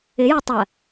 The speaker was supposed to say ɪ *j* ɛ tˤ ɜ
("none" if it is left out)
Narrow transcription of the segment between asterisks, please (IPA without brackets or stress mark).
j